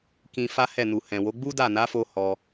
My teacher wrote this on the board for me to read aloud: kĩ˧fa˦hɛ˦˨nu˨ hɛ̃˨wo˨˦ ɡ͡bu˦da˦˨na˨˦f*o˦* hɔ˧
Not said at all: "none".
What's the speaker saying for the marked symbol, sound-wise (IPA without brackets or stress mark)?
o˧